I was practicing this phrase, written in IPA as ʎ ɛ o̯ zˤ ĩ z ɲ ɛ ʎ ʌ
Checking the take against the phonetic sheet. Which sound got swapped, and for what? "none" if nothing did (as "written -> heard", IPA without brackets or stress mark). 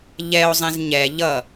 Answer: none